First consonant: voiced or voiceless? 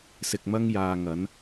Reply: voiceless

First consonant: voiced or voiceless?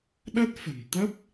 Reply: voiced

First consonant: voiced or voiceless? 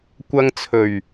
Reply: voiceless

